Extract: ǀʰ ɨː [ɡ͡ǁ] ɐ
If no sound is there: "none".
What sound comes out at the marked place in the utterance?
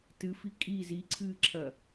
ǁʰ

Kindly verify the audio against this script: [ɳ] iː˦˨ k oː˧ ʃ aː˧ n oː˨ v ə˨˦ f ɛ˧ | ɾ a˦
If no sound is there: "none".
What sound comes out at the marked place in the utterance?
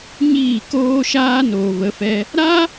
ɲ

